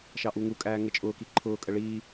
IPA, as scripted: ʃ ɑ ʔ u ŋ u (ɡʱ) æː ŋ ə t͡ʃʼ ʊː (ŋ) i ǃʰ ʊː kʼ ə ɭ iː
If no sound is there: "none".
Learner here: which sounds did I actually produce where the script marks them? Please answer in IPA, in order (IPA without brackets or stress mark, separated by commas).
kʼ, k